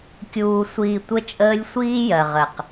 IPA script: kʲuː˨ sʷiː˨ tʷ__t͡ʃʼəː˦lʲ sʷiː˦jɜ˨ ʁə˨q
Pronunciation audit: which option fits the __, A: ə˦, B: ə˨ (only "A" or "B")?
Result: A